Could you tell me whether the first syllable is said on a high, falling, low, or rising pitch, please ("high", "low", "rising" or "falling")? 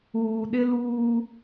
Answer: low